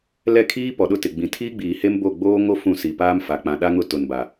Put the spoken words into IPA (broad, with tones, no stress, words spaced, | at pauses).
lɛ˦˨kʰiː˦ pɔ˨ɗʊ˦˨tɪ˨ ɡ͡bĩ˨ tʰiː˦ɡ͡biː˨he˦m bo˦˨ ɡ͡boː˦ŋo˦ fũ˦˨si˨paː˦mfa˨ k͡pã˨ɗa˦ŋʊ˦˨ tʊ˨nba˨